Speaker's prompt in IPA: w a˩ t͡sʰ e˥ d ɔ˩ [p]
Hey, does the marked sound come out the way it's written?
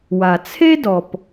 yes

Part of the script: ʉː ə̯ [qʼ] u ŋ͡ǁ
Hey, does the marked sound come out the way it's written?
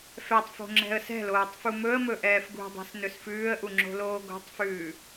no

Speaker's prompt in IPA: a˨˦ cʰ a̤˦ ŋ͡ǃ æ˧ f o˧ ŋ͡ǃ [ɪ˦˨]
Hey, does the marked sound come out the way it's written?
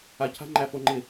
yes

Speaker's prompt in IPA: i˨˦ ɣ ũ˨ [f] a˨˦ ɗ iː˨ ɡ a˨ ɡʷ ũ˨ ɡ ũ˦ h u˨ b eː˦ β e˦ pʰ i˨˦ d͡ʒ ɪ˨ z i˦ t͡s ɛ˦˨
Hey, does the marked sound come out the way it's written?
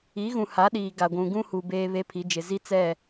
no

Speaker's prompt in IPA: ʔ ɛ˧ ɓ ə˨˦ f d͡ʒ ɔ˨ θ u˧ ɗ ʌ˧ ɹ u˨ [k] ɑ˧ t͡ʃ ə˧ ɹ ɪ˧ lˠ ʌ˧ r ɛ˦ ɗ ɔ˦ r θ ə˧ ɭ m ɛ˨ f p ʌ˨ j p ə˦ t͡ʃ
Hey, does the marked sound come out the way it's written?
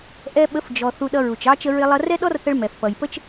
no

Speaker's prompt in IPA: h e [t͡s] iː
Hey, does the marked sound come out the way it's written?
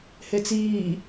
yes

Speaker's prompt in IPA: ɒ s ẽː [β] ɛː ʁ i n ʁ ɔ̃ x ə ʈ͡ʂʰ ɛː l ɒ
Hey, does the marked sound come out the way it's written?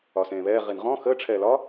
yes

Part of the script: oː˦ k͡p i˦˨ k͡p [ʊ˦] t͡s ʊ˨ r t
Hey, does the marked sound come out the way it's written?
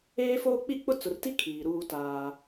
yes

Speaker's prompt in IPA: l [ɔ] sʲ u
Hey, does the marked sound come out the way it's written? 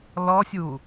yes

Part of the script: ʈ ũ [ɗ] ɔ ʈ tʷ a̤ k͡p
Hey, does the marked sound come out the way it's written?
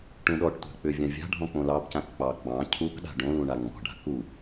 yes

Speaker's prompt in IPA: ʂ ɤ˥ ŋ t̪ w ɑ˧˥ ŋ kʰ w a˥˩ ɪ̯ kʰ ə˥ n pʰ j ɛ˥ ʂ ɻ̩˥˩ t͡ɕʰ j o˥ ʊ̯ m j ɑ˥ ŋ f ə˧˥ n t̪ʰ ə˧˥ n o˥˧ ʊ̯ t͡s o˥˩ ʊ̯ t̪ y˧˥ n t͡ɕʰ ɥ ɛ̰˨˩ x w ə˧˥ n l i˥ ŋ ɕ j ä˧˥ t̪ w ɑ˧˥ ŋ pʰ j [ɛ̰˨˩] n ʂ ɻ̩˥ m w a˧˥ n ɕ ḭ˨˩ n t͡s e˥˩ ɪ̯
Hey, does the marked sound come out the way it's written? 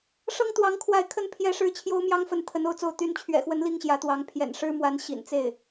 yes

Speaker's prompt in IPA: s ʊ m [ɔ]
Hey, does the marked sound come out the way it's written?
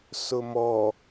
yes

